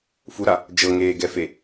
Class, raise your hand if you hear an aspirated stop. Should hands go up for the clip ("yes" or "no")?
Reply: no